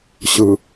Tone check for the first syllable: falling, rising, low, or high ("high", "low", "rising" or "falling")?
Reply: low